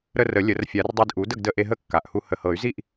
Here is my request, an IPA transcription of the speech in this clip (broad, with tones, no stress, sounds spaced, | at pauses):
ɾ ə˧ r ə˨˩˦ lʲ ə˨˩˦ r fʲ a˨˩˦ r dˤ e˧ d ʔ u˩˥ d ə˥˨ ɡ d ə˧ ʔ e˧ ɦ ə˥˨ kː a˨˩ ʔ h u˧ h ə˨˩ h ɤ˨˩˦ y̯ z i˥˨ ʔ